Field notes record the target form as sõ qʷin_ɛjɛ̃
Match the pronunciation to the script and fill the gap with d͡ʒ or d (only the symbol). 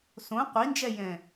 d͡ʒ